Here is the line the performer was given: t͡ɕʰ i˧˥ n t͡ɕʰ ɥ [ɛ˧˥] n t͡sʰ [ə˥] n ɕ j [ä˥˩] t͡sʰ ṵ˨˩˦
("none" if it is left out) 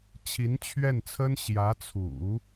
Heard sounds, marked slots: ɛ˥˩, ə˥, ä˧˥

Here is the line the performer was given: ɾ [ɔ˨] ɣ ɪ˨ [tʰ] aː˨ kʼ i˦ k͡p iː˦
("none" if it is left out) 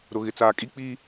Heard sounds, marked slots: ʊ˨, t͡s

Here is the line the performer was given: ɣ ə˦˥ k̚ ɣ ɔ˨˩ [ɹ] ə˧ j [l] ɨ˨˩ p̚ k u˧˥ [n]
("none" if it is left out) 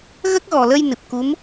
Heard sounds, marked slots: l, n, m

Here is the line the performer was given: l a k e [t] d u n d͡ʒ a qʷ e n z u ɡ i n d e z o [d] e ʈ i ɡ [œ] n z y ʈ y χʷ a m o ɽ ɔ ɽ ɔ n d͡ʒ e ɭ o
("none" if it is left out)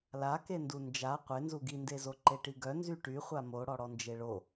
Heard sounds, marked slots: n, ǃ, œ

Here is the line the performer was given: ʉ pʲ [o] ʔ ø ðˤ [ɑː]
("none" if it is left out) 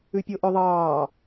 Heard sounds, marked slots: o, ɑː

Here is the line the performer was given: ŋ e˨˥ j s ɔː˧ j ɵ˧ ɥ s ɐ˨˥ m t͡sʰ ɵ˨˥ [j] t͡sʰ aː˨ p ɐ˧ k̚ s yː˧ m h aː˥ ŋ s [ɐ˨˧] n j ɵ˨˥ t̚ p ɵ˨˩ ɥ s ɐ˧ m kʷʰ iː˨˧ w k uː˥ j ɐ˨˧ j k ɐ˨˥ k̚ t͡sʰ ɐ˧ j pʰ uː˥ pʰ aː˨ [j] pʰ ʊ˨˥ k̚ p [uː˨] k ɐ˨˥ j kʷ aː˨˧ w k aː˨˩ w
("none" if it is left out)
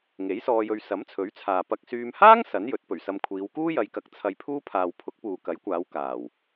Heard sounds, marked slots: ɥ, ɐ˨˥, w, uː˨

